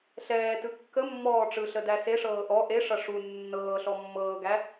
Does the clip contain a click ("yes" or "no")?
no